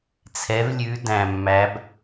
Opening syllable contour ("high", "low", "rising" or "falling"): rising